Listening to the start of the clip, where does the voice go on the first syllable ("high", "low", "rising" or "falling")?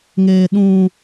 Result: low